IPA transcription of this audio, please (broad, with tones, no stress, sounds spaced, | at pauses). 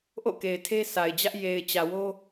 ʔ o̰˦˨ k e˨ ɪ̯ tʰ e˦ sʰ a˨ ɪ̯ d͡ʑ ä˦ ʔ j e˨ ɪ̯ t͡ɕ ä˨ w o˦